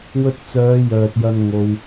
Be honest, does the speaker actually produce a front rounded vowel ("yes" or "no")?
yes